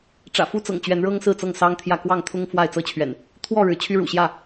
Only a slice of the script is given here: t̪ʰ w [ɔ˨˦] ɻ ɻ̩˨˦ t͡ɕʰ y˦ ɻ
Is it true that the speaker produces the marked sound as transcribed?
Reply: no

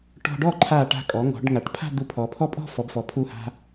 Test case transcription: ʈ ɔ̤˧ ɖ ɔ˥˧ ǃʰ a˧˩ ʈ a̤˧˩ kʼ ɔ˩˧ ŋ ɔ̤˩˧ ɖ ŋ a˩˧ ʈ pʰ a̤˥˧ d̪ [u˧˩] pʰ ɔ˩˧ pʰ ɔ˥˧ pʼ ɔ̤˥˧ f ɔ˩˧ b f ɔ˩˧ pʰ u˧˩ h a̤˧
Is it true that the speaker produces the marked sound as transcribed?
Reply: yes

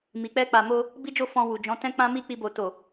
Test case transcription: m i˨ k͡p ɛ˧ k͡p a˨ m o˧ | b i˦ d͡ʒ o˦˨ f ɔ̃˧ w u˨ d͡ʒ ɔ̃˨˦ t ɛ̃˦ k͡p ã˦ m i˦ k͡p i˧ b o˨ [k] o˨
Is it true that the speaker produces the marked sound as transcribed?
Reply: no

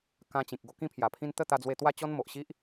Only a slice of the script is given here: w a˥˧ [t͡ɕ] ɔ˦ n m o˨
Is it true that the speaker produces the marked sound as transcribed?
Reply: yes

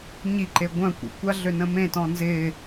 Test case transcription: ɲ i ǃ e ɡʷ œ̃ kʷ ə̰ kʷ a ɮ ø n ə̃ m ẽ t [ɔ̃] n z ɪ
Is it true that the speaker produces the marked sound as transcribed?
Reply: yes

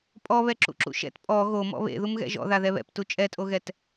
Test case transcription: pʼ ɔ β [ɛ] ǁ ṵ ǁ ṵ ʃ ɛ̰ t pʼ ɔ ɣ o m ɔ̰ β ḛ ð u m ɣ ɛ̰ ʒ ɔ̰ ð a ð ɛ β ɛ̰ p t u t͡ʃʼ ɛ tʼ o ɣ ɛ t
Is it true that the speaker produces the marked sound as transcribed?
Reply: yes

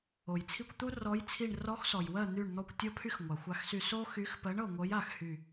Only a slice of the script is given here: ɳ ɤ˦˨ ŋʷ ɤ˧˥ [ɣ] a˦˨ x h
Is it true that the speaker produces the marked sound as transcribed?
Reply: no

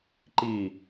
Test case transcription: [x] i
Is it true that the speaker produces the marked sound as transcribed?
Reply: no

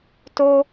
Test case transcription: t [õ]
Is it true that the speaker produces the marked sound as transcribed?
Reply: no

